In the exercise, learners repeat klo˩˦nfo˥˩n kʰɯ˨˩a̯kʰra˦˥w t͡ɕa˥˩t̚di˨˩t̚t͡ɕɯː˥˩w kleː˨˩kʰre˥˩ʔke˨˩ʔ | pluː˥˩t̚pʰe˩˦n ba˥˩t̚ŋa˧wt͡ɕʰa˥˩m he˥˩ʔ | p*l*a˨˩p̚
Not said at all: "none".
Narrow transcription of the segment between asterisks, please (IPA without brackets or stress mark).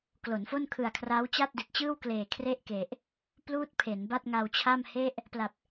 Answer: l